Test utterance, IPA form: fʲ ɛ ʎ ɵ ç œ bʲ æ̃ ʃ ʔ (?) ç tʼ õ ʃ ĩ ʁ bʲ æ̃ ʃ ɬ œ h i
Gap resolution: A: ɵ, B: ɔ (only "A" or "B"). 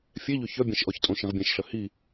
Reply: B